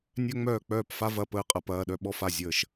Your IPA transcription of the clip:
nʲ œ˥ ŋ͡m œː˥˩ k͡p œː˥˩ p f a˥ v ɐ˧˥˧ p əː˧ qʼ ɐ˧ p ɐː˧˥˧ ɗ œ˥ ɓ ɔ˥ f a˥˩ zʲ əː˥˩ ʃ

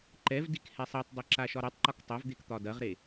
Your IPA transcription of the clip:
ǃ ɛ v d i k h ɛ sˤ ɛ tˤ dˤ ɐ ǁ a ʃ ɒ ɾ e tˤ ǃ ɒ k tˤ ɐ v d̪ e k t̪ ɒ d ɐ ʁ ɾ e

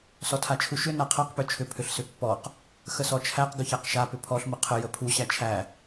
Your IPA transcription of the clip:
s ɔ tʰ a t͡ʃʰ u ʃ ʏ n a qʰ a q p ø t͡ʃʰ ʏ pʰ ʏ ɬ s ʏ pː ɔ q | x ə s ɔ t͡ʃʰ æ q ɡ ʏ ç æ q ʃ a p ʏ pʰ ɔ ɬ m ə qʰ ə j ə pʰ u ɕ æ t͡ʃʰ æ

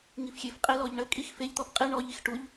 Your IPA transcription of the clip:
ŋ i f xʲ e f qʼ e l ɔ ʎ ɳ ə kʼ i x f e ʎ t̪ ɔ f qʼ i ɳ ɔ ʎ i x ʈ u ʎ

